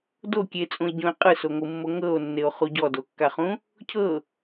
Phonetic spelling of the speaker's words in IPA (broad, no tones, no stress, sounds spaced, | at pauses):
d o kʲ e t͡sʼ ũ e̯ ɟ õ e̯ qʼ ɯ s o ŋʷ ɯ mː o ŋ ɤ o̯ nː e o̯ χ u ɟ ɔ d o kː a χ ũ | cʰ ɤ